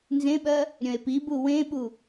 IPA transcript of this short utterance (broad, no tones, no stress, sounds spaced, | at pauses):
n z ẽ ɓ ɜ | ɾʲ œ̃ e̯ p i b u w ẽ ɓ u